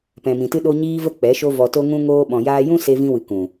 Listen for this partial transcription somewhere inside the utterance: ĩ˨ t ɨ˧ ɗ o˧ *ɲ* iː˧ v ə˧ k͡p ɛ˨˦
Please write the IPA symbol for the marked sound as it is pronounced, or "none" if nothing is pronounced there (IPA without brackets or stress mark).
ɲ